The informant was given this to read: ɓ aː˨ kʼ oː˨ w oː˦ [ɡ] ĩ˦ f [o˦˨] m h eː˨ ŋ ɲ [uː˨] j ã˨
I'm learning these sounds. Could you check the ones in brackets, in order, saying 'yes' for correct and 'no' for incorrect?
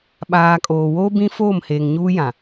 no, no, no

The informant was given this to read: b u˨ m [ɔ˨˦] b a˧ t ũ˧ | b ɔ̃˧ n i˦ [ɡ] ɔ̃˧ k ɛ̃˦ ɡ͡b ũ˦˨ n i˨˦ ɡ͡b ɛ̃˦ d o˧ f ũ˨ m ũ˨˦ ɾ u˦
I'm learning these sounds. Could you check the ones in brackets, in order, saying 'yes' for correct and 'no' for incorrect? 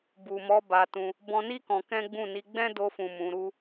yes, no

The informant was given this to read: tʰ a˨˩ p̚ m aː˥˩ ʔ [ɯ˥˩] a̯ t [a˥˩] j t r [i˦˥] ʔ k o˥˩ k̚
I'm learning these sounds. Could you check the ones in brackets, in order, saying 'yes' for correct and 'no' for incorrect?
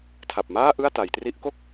yes, no, yes

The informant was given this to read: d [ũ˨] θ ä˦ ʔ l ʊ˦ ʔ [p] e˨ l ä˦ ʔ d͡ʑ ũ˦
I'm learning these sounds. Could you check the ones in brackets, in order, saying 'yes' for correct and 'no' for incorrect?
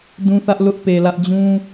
no, yes

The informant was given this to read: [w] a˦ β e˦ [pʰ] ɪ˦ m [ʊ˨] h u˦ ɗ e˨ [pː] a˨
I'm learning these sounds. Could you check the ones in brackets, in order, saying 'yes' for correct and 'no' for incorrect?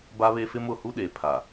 no, no, yes, no

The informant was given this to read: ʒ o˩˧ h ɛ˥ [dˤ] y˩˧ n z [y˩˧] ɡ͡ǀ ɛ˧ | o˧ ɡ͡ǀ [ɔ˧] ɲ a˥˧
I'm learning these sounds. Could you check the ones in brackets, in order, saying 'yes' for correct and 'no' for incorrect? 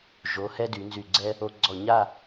no, no, no

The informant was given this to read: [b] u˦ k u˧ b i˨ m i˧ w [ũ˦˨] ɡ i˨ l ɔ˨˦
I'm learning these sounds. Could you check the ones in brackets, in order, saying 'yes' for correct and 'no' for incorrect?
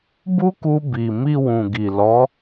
yes, no

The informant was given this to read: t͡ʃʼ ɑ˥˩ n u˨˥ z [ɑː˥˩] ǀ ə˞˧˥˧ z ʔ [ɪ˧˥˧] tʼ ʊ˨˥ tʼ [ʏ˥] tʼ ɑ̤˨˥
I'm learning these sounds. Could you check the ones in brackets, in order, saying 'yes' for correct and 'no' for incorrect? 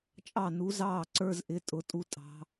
yes, yes, no

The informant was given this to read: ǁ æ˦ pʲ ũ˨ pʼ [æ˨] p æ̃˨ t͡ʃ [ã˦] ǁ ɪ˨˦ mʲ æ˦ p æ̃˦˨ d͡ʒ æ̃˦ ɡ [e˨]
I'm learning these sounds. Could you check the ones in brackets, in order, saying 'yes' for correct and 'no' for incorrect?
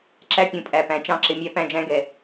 yes, no, no

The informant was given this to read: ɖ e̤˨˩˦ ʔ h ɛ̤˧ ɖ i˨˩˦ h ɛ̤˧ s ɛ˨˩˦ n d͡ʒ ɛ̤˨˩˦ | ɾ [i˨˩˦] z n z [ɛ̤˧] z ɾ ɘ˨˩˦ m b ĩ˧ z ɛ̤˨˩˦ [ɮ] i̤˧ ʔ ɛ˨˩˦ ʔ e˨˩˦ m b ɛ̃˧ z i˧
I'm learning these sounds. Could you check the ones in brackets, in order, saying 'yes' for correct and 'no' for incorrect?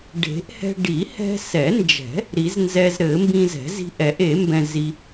yes, no, no

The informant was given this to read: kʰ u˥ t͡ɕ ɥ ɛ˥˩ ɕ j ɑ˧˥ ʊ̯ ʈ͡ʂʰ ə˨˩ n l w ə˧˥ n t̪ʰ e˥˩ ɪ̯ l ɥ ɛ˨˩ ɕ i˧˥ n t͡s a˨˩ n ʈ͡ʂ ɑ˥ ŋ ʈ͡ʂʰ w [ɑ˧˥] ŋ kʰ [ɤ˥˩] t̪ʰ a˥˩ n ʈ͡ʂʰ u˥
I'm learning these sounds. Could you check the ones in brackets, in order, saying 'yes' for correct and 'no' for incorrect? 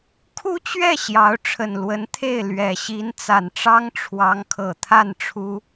yes, no

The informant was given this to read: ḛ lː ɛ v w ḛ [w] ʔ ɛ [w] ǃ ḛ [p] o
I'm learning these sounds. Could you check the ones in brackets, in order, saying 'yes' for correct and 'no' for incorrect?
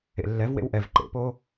yes, no, yes

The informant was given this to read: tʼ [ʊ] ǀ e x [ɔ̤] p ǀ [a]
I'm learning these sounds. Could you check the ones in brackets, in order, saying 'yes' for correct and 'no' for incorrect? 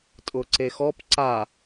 yes, no, yes

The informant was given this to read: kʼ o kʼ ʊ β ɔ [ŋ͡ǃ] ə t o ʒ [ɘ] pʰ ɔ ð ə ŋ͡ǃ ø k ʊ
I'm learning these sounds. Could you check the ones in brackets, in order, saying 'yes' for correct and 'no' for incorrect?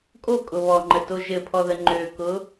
yes, yes

